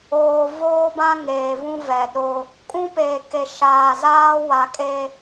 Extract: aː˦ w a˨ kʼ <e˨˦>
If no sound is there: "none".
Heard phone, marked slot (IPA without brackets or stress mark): e˦